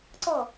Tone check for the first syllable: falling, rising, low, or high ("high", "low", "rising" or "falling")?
falling